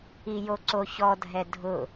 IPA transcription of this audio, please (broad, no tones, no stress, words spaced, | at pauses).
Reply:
ijoǀoçɔ dʱɛdʱʊ